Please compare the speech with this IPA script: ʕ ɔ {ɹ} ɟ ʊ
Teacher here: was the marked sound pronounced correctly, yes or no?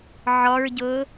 yes